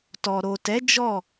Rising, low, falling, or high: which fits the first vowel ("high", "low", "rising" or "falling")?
low